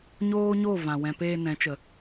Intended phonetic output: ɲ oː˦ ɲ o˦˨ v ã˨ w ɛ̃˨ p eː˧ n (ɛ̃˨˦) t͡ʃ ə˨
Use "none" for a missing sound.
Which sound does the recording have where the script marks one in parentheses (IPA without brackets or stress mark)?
ɛ̃˨˦